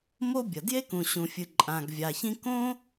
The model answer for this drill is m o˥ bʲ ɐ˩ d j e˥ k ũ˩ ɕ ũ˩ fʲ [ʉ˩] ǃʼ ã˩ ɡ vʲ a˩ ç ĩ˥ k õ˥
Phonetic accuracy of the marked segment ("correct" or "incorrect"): incorrect